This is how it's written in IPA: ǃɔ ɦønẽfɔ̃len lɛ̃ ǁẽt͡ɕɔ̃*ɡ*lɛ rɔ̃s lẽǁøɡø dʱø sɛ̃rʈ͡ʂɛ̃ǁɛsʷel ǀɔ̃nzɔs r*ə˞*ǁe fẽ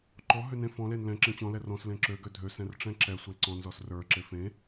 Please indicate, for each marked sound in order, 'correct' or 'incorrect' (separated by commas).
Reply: incorrect, correct